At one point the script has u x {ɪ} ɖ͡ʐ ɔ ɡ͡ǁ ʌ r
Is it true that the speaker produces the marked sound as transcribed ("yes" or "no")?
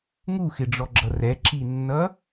yes